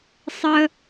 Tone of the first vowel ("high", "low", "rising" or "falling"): low